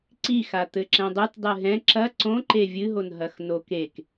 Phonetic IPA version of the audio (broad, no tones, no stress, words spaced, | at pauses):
ǀixa t̪ɘǁɛ̃dˤut dˤɨɦɛ̃ ǁɐ ǀõǃe vʲɨɦonɦɐx nokek